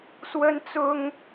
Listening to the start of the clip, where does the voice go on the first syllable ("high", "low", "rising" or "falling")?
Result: high